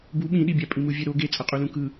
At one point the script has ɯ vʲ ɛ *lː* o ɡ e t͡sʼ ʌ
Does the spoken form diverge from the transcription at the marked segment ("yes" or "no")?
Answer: yes